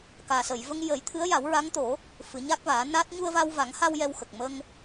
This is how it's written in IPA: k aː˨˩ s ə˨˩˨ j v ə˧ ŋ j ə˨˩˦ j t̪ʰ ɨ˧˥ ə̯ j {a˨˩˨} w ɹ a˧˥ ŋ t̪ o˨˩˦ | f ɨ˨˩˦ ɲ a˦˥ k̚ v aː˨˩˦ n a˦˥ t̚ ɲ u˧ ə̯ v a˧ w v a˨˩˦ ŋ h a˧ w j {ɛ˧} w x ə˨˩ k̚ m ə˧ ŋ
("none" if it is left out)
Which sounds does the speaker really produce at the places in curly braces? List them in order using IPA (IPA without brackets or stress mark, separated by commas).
a˨˩˦, ɛ˧